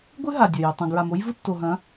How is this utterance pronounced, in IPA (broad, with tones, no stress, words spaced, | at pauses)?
ɡʷɨ˦ ɦa˨dʲɐ˨jɵ˨ tˤɐ̃˨ɡɹa˨mo˦jvu˦ tːo˨ɦɐ̃˨˦